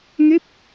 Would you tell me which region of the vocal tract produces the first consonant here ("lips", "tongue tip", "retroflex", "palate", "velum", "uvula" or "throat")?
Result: velum